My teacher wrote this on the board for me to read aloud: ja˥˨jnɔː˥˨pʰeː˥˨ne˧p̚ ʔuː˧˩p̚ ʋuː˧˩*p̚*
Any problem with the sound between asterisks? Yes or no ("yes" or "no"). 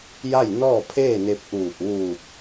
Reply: no